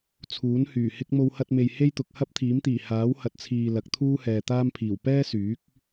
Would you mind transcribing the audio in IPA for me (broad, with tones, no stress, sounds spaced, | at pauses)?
t͡sʰ uː˨˥ n h yː˨˩ h ɪ˥ k̚ m o˧ w h ɐ˧ t̚ m e˨ j h e˥ j t̪ ʊ˨ k̚ h ɐ˥ p̚ t̪ʰ iː˨˥ m t̪ iː˨˩ h aː˨˥ w h ɐ˨ t̚ t͡sʰ iː˨ l ɐ˨˥ k̚ t̪ʰ uː˥ h ɛː˨ t̪ aː˥ m pʰ iː˨˩ w p ɛː˥ s yː˨˥ k̚